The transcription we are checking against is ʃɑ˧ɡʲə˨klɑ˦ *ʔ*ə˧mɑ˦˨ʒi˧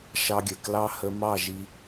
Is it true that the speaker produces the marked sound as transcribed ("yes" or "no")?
no